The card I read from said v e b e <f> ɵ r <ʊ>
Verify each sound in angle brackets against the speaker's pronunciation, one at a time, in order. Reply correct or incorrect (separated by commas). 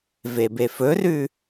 correct, incorrect